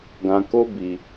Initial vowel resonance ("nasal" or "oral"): nasal